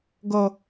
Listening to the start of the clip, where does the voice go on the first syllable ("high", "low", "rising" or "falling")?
high